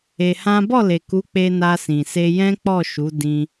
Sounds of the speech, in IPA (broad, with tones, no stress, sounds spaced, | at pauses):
e˧ h ã˦ b ɔ˦˨ l e˨ k u˨˦ k͡p e˧ n a˧ s ĩ˨ s e˧ j ɛ̃˦ k͡p ɔ˦˨ ʃ u˨˦ d ĩ˧